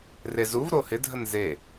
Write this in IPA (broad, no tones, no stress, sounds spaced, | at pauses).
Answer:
r e z u v ɾ o h ɪ dʱ ə n z e